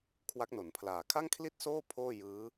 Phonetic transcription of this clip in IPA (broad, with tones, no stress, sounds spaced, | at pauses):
kʰ w a˦˥ k̚ n o˩˦ n pʰ l aː˨˩ kʰ a˥˩ ŋ kʰ l i˥˩ t̚ s oː˥˩ pʰ oː˥˩ j ɯː˦˥